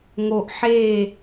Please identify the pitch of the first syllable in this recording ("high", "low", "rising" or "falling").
low